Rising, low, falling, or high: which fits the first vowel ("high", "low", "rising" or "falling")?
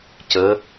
rising